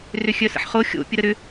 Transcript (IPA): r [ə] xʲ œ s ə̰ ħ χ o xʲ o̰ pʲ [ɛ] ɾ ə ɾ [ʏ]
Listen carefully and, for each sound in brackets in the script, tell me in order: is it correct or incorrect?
incorrect: ʏ, incorrect: ə, correct

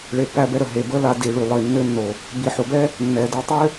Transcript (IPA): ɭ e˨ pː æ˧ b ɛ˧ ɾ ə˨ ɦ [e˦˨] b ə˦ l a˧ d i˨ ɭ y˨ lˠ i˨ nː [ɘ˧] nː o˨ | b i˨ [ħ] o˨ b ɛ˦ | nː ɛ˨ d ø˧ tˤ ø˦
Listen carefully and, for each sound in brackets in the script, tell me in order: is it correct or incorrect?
incorrect: e˨, incorrect: ø˧, correct

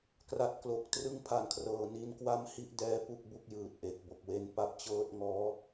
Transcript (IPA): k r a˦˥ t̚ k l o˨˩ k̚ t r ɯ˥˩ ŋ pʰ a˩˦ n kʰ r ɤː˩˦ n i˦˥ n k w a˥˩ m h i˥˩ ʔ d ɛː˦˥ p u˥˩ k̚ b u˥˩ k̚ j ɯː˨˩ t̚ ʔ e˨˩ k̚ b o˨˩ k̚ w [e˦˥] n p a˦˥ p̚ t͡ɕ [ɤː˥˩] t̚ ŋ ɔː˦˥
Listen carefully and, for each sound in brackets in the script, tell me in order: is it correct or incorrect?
correct, correct

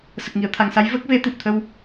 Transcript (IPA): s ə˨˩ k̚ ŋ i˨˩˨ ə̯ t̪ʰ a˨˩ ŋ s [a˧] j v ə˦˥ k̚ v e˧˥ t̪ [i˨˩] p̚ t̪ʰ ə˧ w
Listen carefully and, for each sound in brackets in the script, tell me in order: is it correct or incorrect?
incorrect: a˧˥, correct

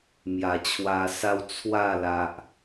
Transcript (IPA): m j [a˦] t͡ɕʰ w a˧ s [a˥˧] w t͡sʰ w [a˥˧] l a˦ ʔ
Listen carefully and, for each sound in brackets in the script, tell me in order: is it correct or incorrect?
incorrect: a˨˩, incorrect: a˦, correct

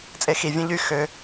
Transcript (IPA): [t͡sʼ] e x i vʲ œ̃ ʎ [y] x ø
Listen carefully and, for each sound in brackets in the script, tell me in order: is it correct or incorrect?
correct, correct

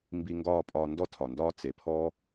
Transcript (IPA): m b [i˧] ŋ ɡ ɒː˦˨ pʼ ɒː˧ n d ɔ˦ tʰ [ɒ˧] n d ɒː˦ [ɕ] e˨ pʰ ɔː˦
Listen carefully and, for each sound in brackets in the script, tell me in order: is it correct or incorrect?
correct, incorrect: ɒ˨, incorrect: t͡s

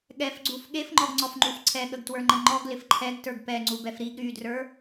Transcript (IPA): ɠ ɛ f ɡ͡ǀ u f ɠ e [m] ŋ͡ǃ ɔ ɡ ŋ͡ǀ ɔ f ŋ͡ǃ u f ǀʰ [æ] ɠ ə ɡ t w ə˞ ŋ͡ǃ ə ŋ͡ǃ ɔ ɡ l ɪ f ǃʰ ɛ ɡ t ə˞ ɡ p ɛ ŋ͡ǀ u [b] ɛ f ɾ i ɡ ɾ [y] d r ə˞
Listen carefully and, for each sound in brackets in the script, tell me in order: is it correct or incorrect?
incorrect: f, incorrect: ɛ, correct, correct

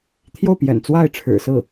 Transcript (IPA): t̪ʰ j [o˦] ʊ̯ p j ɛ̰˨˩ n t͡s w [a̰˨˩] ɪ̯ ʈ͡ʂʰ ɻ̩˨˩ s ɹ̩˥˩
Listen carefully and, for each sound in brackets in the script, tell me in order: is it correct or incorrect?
incorrect: o˥˩, incorrect: a˥˩

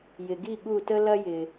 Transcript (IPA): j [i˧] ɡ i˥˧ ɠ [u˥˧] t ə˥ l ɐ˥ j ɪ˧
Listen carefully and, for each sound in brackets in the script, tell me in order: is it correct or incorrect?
incorrect: ɪ˧, correct

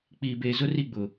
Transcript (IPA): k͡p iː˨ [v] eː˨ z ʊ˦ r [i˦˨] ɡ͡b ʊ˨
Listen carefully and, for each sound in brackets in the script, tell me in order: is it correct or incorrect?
incorrect: b, correct

